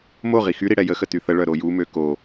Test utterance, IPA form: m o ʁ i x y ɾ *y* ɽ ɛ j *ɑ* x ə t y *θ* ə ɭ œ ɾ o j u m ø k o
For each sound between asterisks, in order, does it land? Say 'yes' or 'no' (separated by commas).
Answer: no, no, yes